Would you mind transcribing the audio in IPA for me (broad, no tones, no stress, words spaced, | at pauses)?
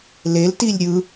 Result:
leltilʲ ɾʲɯ